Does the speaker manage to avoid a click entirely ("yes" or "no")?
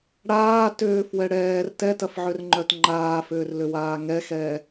no